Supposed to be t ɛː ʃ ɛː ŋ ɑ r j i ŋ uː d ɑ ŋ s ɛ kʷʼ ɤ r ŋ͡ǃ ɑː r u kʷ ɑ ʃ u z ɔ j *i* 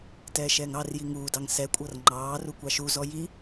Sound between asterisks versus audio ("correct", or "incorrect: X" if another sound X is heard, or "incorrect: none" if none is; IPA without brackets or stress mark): correct